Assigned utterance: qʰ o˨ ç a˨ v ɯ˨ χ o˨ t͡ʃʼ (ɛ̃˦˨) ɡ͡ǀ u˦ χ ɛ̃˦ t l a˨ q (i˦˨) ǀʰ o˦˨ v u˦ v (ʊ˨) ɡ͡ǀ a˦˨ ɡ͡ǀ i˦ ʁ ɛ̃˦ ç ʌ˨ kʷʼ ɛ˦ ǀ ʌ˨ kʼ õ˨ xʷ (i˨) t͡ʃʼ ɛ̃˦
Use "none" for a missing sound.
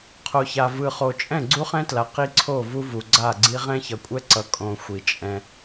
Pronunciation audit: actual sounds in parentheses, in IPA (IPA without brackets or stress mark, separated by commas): ɛ̃˦˨, i˦, u˨, i˨